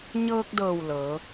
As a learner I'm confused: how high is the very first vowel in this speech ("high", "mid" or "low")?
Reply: mid